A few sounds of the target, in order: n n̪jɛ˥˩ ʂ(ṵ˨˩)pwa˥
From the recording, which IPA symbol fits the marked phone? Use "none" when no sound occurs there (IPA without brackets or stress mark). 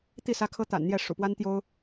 ṵ˨˩